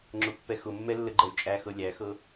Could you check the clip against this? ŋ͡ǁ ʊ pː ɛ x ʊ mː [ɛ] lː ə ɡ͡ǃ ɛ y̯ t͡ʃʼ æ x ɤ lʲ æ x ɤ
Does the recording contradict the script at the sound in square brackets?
no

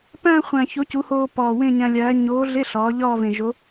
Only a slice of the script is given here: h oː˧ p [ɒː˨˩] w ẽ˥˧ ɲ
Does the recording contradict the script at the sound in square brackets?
no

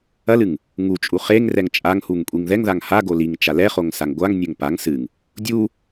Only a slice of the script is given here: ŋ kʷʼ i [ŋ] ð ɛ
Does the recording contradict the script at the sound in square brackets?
no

